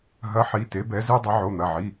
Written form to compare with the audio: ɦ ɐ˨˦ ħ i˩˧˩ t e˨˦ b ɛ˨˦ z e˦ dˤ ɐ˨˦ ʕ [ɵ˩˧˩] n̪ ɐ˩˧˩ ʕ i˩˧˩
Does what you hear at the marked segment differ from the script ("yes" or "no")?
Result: yes